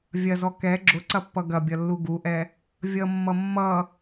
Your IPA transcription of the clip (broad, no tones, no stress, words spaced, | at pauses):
vʲɐzɔ kɛ ɡ͡ǁʊǀɐpːʌ ɡɐbʲʌlːu ɡuʔɛ | vʲʌmːʌ mːʌ